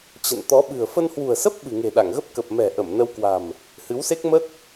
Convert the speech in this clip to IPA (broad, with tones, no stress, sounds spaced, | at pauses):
t͡ɕ ə̰˧˨ n t̪ ɔ˨˦ ɓ ɨ̤˨˩ ə̯ f ə˧ n h w ṳ˨˩ ə̯ s ə˦˥ p̚ ɓ ɨ̤˨˩ ŋ e̤˨˩ ɗ a˧˩ ŋ ɣ ə˦˥ p̚ k ə˨˩ p̚ m ɛ̤˨˩ ʔ ə˧˩ m n ə˧ w k w a̤˨˩ m | h ɨ˨˦ w s e˦˥ k̚ m ə˦˥ t̚